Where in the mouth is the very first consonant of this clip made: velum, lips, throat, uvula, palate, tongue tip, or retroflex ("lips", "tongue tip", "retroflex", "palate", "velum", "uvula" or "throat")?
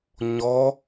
palate